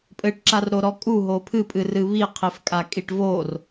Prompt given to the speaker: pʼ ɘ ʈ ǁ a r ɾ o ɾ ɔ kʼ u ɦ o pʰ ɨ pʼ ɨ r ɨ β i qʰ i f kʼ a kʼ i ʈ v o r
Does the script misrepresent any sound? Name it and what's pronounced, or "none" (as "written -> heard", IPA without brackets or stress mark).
none